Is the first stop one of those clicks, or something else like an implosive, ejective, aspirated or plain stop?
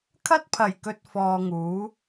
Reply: aspirated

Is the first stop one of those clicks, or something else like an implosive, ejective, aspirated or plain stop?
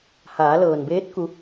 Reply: plain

